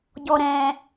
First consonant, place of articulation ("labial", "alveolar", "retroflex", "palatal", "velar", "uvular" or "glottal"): palatal